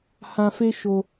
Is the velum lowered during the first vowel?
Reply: yes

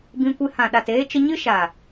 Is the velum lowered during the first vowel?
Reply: yes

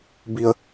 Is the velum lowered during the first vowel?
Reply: no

